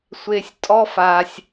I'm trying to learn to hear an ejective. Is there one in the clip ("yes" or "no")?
yes